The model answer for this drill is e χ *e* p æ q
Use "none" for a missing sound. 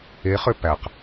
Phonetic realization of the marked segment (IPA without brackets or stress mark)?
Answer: ø